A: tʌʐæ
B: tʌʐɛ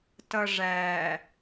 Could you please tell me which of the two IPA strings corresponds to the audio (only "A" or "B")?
A